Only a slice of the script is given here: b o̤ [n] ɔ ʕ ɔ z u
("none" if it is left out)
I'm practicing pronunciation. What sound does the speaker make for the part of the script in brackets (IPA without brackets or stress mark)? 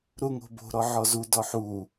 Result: ɾ